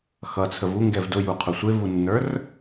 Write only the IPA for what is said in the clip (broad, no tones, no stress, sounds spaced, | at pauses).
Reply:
x ʌ t͡sʰ ə v u ŋ ɡ ɛ v d ʊ j u qʰ ʊ sʷ ɪ v u nː ə˞ r